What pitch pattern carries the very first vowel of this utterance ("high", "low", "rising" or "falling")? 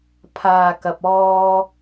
low